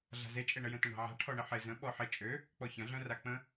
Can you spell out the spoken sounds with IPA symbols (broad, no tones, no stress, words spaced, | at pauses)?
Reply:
ɮa̤zet͡ʃʼeɳə jə̃tə̃ɳa̤ʕa̤ ʈʰɔɳɪħɪ zə̃ ɓɔħɪ t͡ʃʼø | k͡pɔçɐ̃ɮœ̃ rak͡pə̃